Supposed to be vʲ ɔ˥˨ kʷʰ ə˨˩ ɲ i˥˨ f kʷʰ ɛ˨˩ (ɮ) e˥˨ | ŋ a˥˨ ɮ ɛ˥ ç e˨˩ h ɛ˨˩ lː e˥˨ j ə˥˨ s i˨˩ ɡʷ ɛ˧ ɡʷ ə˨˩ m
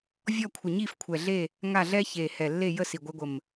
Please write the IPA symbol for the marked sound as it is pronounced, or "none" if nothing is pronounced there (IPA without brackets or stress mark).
ɮ